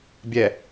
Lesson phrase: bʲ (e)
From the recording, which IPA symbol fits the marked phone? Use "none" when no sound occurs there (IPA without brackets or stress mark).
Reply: ɛ